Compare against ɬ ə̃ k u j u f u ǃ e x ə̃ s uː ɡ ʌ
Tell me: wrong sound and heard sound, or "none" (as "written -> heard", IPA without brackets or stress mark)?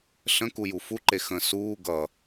none